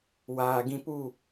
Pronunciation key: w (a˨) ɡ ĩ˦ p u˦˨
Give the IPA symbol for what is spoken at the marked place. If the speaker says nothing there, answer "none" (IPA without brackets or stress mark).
aː˨